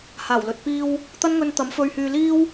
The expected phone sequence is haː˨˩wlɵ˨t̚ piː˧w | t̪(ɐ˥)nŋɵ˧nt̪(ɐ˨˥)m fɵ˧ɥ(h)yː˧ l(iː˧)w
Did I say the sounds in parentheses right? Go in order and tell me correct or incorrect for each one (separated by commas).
correct, correct, correct, incorrect